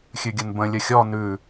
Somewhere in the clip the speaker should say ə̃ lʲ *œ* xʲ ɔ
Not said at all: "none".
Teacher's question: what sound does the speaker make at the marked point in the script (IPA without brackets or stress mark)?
ə